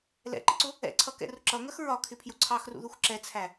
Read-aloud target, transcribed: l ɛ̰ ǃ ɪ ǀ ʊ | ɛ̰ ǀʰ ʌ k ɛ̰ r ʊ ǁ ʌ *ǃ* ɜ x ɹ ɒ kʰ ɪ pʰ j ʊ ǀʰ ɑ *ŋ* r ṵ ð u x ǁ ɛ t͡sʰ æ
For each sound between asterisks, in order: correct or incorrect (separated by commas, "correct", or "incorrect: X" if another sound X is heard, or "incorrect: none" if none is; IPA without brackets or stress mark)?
incorrect: ŋ, incorrect: x